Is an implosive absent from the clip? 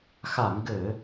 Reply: yes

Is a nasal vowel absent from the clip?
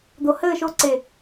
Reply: yes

